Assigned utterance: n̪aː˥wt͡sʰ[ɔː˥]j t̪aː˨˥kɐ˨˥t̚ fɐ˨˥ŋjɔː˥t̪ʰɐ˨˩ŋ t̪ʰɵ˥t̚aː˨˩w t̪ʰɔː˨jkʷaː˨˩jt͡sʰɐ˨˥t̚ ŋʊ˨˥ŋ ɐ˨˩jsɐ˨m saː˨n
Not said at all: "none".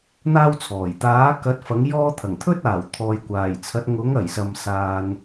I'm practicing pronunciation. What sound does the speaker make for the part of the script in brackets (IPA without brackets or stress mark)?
ɔː˨˩